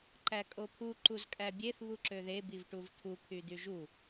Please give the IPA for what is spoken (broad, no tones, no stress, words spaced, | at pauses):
ǃækʼopʰu ǃuzkʼæbʲeθ βuǁøðe bivʈuvt̪ʰu kʰyd̪yʒu